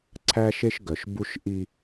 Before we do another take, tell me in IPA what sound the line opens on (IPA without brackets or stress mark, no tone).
ǀʰ